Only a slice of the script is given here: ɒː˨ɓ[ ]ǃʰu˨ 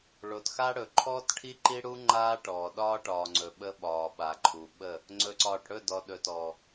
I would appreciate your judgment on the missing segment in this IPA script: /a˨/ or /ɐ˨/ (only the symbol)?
a˨